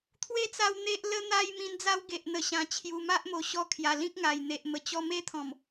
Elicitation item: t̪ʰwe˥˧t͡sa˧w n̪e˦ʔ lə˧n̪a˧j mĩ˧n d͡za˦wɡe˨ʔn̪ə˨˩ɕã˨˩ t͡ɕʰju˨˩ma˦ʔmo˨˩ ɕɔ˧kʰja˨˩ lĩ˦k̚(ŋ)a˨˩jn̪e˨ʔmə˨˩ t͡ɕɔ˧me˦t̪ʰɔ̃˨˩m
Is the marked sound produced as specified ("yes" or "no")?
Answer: yes